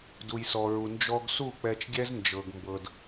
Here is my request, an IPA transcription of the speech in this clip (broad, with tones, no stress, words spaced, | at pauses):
du˨jsɔ˨ɹu˨ nd͡ʒɔ˧ɡsu˦˨ k͡pɛ˧t͡ʃɡʲɛ˦z nd͡ʒɤ˨ɡmbɤ˨d